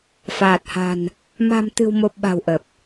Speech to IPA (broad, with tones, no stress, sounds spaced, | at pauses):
f aː˨˩ t̚ h a̤˨˩ n | m a̤˨˩ m t̪ ɨ̤˨˩ w m o˨˩ p̚ ɓ a̤˨˩ w ʔ ə˨˩ p̚